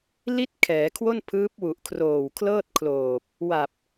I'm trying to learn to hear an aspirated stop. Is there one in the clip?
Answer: yes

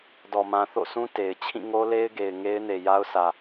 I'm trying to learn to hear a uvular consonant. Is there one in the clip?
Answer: no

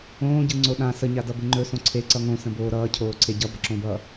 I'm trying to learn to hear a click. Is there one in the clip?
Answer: yes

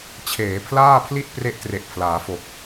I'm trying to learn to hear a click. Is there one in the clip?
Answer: no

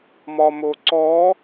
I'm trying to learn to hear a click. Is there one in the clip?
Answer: yes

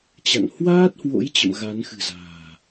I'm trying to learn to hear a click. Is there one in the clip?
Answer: no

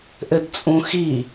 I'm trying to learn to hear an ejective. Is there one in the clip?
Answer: yes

